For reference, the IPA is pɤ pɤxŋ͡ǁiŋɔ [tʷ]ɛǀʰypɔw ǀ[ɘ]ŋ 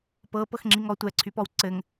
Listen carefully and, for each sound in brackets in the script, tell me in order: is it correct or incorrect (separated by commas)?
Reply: correct, correct